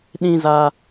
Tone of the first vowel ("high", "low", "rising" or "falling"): high